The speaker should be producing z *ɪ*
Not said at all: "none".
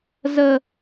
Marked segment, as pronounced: ə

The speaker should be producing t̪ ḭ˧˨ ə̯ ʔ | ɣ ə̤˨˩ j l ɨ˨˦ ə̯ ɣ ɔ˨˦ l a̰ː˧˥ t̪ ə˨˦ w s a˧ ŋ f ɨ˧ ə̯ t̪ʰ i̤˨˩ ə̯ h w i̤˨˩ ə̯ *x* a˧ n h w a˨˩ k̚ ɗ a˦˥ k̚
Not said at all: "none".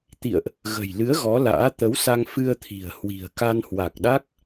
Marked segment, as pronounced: k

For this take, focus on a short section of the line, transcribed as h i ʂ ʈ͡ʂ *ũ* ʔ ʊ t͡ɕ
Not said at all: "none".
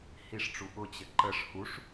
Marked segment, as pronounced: u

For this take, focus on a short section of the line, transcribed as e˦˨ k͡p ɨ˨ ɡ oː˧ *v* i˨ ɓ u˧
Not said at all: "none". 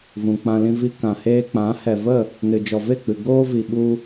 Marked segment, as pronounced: v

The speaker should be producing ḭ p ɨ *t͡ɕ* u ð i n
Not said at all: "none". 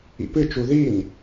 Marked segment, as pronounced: t͡ʃ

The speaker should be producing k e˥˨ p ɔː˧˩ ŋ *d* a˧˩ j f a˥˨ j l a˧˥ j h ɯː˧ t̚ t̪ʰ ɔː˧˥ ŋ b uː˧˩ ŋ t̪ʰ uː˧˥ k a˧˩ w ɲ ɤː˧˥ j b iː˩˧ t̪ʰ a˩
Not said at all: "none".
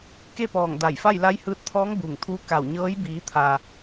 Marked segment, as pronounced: d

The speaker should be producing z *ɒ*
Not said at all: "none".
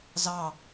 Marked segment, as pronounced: ɑ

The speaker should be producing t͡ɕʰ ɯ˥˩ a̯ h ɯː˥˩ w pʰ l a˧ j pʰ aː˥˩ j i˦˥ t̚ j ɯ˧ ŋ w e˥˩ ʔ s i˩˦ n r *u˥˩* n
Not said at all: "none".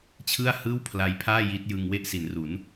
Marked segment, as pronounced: u˩˦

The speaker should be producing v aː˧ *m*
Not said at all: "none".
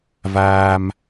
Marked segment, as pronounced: m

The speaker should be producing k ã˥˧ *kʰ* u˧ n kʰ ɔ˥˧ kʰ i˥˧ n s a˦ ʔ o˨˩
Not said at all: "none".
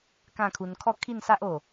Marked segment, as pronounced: kʰ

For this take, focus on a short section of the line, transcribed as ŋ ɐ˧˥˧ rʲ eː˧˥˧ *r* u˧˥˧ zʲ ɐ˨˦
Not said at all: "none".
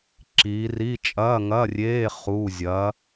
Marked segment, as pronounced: χ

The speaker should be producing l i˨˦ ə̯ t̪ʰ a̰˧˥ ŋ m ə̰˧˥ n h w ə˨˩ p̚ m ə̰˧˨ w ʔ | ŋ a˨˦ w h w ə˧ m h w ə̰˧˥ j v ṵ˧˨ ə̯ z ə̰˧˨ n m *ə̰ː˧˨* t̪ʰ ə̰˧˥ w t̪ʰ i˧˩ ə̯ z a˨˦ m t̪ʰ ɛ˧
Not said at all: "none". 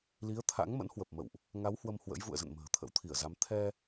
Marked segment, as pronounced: ə̤ː˨˩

